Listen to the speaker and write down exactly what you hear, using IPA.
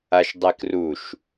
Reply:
a ʃ dˤ e k r u ʃ

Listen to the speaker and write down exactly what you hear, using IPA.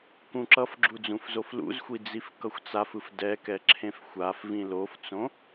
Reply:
k ũ ǁ ʌ f ɡ͡ǁ u d͡z ũ f z o f l ṵ z xʷ i d͡z i f k ʌ xʷ t͡s a f ɯ f d ɛ k ɛ ǁʰ ẽ f xʷ a f v ĩ l o f t͡s õ

